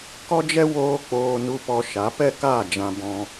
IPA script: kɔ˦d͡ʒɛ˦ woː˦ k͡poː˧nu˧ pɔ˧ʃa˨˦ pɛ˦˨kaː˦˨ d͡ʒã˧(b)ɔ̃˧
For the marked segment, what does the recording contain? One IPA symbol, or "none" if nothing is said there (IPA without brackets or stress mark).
b